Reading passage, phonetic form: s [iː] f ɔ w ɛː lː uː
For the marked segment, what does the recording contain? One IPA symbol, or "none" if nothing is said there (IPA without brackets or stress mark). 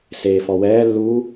eː